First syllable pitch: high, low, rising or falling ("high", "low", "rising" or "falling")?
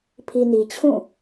low